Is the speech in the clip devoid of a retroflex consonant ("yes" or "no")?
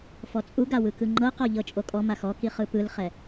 yes